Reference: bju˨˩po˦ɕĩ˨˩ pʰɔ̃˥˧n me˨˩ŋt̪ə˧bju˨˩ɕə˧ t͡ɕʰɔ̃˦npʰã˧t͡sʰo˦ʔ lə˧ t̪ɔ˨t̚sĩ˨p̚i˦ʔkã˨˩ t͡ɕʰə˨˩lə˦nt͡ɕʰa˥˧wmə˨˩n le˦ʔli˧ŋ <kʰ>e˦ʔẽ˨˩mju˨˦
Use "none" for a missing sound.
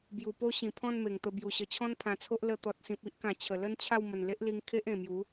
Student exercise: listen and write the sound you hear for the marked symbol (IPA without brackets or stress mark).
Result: kʰ